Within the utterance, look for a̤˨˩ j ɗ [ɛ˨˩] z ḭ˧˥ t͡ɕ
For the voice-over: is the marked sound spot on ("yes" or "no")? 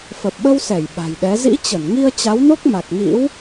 no